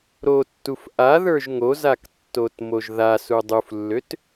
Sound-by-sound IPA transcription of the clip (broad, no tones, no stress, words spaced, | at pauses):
ɾotːuf ʔa ðə˞ʒŋozak tːotmoʒðasu dˤuflːøt